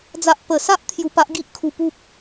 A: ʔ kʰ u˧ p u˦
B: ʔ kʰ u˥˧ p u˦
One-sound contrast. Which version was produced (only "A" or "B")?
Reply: A